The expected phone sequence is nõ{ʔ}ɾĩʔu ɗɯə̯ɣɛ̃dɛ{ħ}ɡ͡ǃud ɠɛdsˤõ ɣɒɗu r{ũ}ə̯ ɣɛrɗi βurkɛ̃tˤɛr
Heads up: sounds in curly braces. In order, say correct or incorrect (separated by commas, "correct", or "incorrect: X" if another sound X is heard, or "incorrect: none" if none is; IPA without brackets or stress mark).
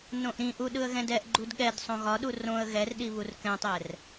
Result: correct, incorrect: ʔ, incorrect: õ